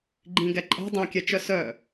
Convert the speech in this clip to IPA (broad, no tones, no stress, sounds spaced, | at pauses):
ɡ͡ǃ ĩ ɡ ɛ ǃʼ e̤ dˤ õ kʲ ɛ t͡ʃ œ s œ